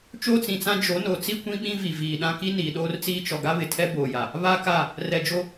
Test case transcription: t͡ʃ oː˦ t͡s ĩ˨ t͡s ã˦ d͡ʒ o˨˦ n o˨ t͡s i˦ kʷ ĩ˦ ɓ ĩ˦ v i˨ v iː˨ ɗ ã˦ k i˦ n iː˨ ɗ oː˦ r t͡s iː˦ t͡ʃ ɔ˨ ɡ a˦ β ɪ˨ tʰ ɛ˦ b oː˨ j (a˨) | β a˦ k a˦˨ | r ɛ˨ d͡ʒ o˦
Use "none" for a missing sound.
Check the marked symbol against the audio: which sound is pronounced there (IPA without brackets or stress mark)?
a˨